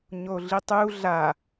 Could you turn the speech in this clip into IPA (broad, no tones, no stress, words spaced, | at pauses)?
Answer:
ɲoɮitˤu ɮa